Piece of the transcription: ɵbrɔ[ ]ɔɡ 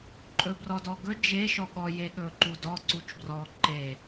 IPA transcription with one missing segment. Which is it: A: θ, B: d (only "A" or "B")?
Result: B